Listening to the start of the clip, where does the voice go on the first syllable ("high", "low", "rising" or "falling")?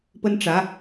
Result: high